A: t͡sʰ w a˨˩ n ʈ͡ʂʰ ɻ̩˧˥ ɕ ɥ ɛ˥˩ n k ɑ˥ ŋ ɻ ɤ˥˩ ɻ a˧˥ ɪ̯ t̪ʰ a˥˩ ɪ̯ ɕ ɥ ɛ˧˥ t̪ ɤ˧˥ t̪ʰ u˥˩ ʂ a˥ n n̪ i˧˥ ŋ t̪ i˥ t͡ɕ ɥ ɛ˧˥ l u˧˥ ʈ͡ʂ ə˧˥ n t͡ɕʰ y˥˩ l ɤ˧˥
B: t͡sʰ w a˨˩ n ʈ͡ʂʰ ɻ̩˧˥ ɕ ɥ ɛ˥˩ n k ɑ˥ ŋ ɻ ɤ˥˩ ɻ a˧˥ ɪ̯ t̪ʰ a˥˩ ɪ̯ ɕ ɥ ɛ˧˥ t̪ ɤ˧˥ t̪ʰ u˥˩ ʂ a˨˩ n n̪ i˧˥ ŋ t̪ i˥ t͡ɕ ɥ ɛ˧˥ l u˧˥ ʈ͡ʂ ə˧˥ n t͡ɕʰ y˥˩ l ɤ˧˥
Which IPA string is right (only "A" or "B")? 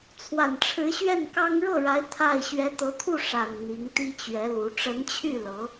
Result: B